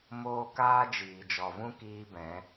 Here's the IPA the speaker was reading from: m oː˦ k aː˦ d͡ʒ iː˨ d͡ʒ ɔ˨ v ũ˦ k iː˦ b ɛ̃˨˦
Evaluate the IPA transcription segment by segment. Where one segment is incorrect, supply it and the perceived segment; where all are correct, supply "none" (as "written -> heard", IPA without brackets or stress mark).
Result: none